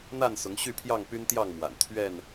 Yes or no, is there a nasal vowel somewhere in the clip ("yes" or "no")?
no